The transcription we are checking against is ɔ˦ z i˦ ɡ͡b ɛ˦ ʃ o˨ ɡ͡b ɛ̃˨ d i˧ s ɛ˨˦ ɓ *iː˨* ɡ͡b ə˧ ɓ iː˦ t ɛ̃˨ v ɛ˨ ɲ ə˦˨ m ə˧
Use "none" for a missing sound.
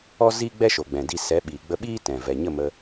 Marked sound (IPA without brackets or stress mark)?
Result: iː˨